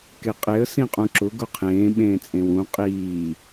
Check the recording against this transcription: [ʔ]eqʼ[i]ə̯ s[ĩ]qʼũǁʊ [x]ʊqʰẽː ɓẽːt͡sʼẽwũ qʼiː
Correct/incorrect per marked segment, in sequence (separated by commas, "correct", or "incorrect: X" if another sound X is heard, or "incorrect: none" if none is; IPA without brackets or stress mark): incorrect: k, incorrect: e, correct, incorrect: ɡ